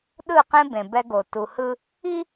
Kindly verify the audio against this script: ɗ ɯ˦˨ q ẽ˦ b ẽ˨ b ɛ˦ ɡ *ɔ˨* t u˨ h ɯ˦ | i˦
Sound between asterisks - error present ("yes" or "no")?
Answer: yes